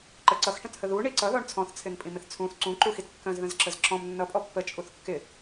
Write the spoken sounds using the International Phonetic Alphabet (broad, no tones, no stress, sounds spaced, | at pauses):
ǃ ə ǀ ʌ x ʈ ə̃ t h ə ð u ɳ i ǀ ʌ ð ɔ ɳ t͡sʰ ɔ̃ θ t͡sʰ ɪ n pʼ ĩ m ɪ θ t͡sʰ ũ θ ǀ ũ ǃ u x i t kː ə̃ z ð ə̃ z ǁ ə z ǁ ɔ̃ m nː ʌ pʼ ɔ pː ə t͡ʃʼ u θ kː ɪ